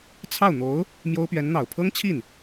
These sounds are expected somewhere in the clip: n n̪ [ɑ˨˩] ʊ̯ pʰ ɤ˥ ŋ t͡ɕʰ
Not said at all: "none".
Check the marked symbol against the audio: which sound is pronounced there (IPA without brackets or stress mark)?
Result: ɑ˨˩